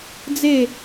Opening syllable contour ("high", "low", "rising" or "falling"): falling